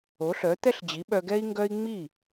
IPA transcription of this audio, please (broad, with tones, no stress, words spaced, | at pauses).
o˩˥ ɬœ˩˥t̪ɛ˥ɬd͡ʑi˩˥ ɓœ˧ɡɛ˥i̯ŋɡœ˥i̯ ŋ͡mi˥˩